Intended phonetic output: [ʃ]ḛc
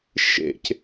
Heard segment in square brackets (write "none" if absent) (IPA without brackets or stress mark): ʃ